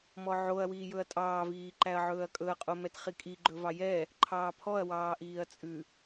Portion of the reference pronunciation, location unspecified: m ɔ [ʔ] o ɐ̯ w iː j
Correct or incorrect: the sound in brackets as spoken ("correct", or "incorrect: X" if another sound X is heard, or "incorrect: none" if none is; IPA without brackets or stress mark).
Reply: incorrect: ʕ